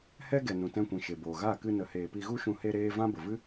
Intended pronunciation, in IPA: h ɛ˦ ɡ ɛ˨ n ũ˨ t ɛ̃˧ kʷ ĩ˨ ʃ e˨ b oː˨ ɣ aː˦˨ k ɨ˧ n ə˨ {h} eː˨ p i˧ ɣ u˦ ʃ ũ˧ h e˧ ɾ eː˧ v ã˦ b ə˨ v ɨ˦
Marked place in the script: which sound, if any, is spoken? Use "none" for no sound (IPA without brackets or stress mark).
h